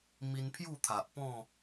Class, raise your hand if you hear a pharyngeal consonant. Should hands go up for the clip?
no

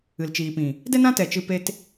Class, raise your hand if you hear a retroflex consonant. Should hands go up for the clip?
no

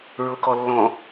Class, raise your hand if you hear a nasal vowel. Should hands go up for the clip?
yes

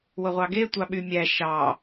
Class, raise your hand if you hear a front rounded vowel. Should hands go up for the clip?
yes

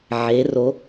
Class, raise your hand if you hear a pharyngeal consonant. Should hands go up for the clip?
yes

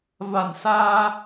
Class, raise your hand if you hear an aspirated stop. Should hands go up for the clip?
no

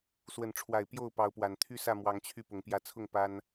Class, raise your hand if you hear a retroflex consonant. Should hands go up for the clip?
yes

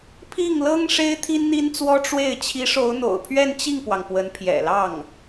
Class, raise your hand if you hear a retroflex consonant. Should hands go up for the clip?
yes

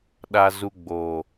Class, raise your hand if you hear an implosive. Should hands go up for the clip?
yes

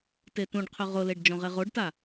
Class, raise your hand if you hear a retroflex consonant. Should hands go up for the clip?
yes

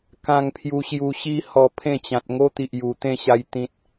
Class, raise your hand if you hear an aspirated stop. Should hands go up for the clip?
yes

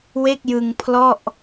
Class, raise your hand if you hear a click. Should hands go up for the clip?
no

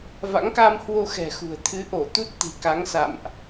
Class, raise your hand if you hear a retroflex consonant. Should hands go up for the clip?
no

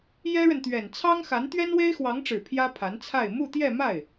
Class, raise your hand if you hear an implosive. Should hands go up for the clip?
no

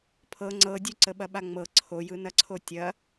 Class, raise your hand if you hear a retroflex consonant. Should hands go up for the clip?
no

